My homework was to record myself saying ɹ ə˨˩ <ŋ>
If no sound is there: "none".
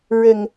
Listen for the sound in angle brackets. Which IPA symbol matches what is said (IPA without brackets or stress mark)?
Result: ŋ